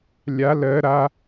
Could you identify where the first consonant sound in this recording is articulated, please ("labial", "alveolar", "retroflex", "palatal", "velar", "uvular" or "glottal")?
alveolar